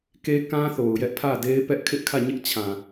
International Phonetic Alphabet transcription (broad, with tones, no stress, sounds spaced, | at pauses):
k e˦ k ã˦ θ o˨ ʊ̯ j ɛ˦ ʔ pʰ ä˦˨ d e˦ ɪ̯ p ɛ˦ ʔ kʰ ɪ˦ ʔ kʰ ä˦˨ ɲ ɪ˦ ʔ t͡ɕʰ ã˨